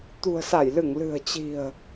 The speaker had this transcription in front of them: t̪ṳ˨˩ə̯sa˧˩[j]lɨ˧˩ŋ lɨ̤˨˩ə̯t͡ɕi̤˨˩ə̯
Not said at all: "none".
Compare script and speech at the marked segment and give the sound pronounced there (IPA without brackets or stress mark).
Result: j